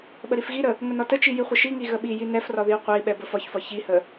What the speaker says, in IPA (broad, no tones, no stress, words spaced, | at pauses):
ɓəɾifɣiɾə | ŋənɒtət͡ʃi jiχʷəʃiŋi ɣəɓiji nɛfrɒ ðiu̯qʷɛi̯ɓɛ bəfɒçfɒ çihə